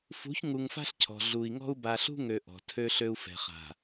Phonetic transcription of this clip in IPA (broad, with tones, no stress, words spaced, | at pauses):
fṳ˨˦çŋu˨ŋ fa̤˦ɬcʰɔ̤˨ ɮu˨i̯ŋɔ̤˦u̯ ba˨ ɬṳ˦ŋø˨ ʔɔ̤˨tʰø˦ɬø˦u̯ fɛ̤˨χa̤˨